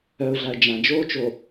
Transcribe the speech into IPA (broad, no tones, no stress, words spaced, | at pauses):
œʊ̯ɮaə̯ d͡ʒãd͡ʒoːt͡ʃo